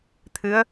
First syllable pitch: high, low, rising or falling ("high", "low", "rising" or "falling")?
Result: rising